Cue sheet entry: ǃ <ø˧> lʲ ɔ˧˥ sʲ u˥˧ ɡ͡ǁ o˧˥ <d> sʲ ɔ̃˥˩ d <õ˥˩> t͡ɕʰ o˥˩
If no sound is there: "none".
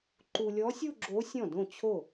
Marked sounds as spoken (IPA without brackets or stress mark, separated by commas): u˧, none, õ˥˩